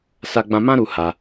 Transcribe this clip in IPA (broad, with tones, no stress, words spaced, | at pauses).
sa˦ɡ͡bã˦ mã˦ɾu˧ ha˧